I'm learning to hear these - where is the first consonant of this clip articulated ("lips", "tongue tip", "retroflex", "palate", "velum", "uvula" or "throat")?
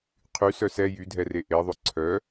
uvula